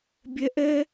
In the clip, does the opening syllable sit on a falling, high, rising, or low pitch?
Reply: high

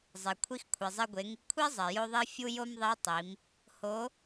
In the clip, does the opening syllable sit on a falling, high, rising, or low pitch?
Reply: low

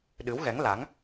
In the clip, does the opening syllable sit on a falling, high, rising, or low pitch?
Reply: rising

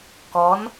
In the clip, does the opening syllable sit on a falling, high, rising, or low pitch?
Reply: rising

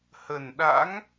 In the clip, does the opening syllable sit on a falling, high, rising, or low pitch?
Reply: low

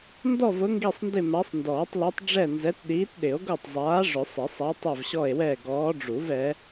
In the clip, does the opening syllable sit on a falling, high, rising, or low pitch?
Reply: falling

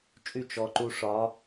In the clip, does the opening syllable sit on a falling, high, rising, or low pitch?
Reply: falling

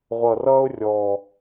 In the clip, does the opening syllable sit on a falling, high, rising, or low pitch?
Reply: low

